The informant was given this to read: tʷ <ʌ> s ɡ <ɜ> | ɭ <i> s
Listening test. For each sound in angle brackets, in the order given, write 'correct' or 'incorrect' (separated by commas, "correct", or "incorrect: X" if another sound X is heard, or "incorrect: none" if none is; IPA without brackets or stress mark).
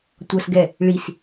correct, incorrect: ɛ, correct